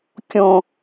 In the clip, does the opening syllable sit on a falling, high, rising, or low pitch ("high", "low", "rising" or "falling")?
high